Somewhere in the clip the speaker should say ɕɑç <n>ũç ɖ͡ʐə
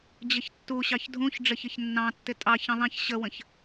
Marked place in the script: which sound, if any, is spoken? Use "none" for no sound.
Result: dʱ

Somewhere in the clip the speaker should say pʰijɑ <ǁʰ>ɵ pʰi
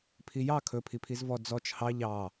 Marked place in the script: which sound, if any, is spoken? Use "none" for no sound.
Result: kʰ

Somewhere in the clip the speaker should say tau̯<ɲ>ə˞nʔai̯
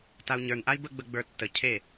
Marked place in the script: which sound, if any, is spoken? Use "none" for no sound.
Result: ɲ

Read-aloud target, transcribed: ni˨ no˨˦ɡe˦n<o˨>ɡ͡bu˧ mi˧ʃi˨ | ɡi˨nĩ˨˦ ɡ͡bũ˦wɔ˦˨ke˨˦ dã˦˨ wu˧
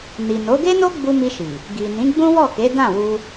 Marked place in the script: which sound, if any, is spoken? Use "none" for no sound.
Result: o˦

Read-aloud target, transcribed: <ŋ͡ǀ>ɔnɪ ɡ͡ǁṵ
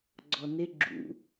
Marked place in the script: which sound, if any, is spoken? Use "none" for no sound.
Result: ɡ͡ǀ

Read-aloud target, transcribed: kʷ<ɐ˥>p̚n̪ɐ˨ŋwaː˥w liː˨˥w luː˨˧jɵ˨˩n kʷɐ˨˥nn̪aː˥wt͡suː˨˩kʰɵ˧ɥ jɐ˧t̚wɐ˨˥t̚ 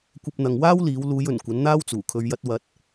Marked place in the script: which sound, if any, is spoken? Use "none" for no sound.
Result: ɐ˧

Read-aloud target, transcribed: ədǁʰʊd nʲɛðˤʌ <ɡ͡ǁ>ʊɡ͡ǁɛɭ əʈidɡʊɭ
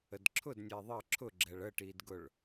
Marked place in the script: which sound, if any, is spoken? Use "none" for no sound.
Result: ǁʰ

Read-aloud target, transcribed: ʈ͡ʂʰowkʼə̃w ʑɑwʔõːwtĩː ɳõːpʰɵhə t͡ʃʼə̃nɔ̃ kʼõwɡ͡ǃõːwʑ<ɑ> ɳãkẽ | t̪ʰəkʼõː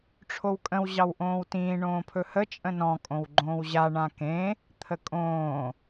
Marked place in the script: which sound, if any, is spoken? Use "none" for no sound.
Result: a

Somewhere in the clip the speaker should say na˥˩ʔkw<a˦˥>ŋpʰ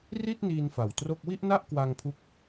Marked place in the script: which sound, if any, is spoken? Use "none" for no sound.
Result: a˧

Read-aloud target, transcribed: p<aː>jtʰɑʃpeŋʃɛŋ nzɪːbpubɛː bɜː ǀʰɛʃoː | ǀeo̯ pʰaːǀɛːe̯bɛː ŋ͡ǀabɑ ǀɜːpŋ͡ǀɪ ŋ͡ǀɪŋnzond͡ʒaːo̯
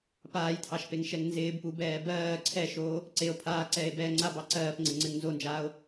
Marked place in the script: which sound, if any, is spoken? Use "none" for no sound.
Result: aː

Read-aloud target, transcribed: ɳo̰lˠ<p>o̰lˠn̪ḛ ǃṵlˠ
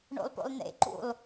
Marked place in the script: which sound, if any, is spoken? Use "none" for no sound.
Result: p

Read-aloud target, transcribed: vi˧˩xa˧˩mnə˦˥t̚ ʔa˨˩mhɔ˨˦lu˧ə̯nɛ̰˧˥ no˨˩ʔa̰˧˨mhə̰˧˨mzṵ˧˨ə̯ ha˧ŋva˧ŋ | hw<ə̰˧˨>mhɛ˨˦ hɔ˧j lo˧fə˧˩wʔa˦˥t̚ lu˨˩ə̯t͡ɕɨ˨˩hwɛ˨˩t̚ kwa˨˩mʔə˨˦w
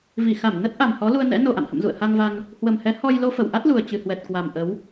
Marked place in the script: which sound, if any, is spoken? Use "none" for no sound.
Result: ə˨˩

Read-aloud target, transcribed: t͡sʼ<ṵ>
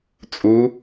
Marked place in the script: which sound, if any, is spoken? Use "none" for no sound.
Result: u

